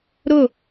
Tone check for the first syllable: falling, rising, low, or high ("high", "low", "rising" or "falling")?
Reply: falling